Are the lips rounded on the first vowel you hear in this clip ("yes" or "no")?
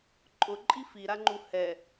yes